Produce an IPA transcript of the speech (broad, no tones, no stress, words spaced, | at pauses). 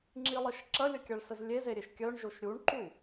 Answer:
ŋ͡ǁilˠəʃ ǁɐlʲəkʲɐɭsəz lʲezeɾʲeʃ kʲœɳʒoʃ ɾʲuɳǃu